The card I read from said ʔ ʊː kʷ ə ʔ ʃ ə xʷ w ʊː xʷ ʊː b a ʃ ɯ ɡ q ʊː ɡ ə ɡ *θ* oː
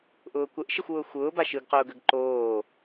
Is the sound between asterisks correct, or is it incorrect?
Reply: incorrect